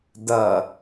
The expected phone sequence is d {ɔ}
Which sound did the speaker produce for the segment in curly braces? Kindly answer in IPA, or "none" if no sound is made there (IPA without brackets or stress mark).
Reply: ʌ